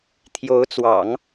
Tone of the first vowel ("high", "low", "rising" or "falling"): rising